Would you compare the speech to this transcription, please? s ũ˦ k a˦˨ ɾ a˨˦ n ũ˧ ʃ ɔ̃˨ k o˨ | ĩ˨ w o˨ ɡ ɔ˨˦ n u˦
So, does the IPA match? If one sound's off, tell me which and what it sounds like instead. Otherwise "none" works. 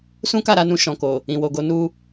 ɔ˨˦ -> o˨˦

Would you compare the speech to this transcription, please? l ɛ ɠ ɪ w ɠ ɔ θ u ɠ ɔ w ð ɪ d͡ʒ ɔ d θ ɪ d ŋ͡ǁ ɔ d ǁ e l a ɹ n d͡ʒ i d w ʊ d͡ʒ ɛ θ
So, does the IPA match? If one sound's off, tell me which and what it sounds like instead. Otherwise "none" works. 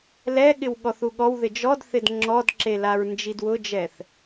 none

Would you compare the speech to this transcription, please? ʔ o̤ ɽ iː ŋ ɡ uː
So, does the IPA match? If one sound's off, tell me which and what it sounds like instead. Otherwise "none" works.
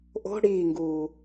none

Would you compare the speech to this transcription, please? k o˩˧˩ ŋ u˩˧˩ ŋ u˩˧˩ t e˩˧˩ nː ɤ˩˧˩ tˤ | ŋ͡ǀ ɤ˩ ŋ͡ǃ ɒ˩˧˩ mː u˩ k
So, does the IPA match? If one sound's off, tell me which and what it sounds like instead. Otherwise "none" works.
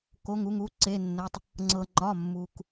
t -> ǀ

